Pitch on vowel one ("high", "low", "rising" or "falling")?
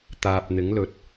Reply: low